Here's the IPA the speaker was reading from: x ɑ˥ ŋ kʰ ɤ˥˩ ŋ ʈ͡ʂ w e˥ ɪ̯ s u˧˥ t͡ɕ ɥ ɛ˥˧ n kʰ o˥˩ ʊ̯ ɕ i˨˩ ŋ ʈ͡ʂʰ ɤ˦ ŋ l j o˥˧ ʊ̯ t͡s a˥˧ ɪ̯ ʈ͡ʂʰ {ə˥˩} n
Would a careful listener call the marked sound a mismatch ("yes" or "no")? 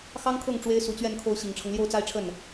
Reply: no